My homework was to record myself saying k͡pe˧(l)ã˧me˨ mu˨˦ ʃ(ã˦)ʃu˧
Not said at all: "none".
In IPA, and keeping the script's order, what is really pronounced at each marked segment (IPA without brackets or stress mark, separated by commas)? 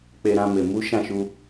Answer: ɾ, ã˦˨